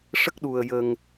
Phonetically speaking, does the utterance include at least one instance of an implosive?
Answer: yes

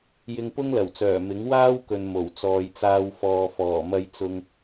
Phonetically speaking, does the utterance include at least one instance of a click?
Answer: no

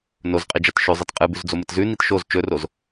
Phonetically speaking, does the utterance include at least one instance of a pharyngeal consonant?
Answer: no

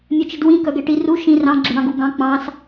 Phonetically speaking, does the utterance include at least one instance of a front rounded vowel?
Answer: yes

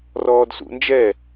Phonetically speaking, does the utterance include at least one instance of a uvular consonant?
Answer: no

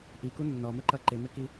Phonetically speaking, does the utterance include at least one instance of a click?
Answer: yes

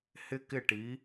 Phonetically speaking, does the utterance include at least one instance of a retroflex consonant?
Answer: yes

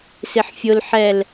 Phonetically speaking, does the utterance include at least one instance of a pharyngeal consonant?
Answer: yes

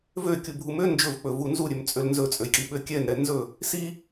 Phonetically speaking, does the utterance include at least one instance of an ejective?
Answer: yes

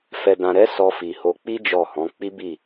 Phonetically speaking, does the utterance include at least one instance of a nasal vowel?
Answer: yes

